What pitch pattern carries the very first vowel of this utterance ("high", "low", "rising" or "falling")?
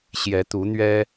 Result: rising